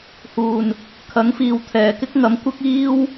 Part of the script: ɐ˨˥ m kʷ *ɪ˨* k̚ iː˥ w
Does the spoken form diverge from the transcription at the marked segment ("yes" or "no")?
yes